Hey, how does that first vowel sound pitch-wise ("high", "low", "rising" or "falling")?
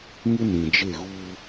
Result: high